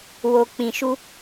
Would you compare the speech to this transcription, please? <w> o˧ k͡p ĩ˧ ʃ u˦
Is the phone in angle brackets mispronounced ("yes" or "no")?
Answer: no